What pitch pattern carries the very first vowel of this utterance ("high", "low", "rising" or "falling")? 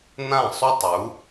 falling